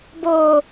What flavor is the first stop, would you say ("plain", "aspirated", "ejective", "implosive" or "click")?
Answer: plain